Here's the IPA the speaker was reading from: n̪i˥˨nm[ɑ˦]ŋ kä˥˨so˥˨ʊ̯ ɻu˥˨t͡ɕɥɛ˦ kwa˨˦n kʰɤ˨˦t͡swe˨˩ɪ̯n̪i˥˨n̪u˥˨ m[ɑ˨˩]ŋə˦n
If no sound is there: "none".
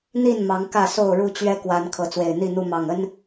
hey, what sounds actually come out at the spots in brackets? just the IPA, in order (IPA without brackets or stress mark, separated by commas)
ɑ˨˦, ɑ˨˩